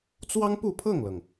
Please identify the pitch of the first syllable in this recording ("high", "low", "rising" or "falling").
high